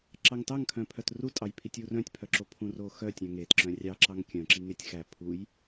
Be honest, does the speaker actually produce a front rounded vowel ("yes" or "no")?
yes